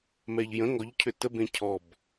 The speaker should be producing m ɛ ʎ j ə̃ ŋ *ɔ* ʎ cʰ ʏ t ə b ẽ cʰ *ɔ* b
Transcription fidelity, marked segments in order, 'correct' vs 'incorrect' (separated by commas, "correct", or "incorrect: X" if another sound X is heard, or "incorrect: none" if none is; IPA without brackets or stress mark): correct, correct